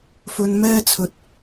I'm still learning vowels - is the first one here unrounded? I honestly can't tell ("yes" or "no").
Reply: no